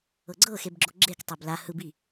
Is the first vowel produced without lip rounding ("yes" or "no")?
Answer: yes